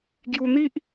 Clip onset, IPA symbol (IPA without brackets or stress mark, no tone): ɡ